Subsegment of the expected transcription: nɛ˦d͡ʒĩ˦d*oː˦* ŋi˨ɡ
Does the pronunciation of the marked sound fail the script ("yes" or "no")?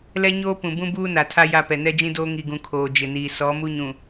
no